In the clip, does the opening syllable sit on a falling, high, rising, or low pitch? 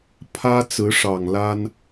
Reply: high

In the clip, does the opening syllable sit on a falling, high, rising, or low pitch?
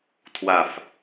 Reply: low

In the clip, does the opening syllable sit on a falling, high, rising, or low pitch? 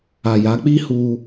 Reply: low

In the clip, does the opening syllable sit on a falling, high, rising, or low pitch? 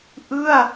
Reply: falling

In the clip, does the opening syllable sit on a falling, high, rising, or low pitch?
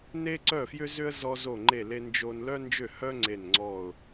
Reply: high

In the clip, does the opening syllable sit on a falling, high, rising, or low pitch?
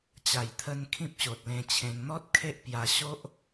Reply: low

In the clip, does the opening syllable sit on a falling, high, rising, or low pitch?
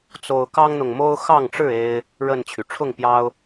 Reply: high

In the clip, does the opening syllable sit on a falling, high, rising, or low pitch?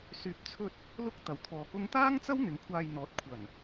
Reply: low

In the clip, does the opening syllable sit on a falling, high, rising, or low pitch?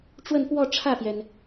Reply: falling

